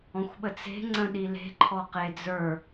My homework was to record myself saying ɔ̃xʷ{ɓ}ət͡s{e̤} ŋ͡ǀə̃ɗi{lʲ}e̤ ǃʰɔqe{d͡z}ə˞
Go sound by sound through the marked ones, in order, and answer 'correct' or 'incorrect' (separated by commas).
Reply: correct, correct, incorrect, correct